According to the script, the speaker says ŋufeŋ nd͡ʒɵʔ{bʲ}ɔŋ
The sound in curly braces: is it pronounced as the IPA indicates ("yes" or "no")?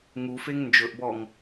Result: no